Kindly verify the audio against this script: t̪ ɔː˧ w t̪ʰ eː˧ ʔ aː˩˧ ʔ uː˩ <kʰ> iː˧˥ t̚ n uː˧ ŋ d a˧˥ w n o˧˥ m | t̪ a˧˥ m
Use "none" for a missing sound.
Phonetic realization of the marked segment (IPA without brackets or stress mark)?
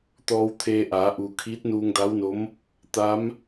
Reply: kʰ